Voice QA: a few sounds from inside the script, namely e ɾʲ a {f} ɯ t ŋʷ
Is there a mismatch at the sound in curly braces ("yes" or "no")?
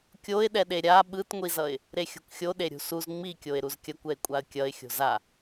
yes